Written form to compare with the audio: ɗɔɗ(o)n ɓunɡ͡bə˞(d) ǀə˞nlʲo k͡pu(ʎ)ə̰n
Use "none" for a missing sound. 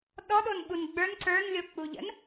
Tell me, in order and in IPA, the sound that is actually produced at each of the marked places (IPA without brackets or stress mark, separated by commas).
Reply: o, n, ʎ